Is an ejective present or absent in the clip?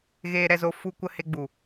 absent